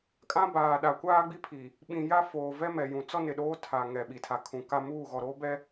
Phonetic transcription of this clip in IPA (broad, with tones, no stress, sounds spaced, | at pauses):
kʼ ã˦ b aː˨ ɗ a˨ kʷ aː˦ ɡ͡b i˦ pʰ i˨ | ɓ ĩ˨ j a˦ f oː˨ v ɛ˦ m ɛ˨ j ũ˨ t͡s ɔ˦ n ɪ˨ ɗ oː˦ tʰ a˨ ŋ ɛ˨ ɓ i˨ tʰ a˨ kʰ ũ˨ k a˦ m uː˦˨ ɣ ɔ˨ ɾ oː˦ b ɛ˦